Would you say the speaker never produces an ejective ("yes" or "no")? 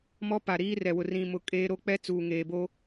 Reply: no